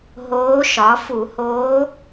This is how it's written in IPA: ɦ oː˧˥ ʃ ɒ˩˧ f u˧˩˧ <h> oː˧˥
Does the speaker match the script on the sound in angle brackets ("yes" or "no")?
yes